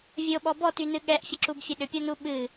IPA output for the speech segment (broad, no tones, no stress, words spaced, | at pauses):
vʲoɓɔ bɔtynɨ ɠɛʔfʲəǁubfʲə ɗʏpʲɔnu ɓɨ